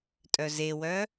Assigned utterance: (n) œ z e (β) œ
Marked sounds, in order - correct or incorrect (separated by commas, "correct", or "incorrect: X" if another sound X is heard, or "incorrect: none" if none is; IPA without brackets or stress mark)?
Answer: incorrect: tʼ, incorrect: w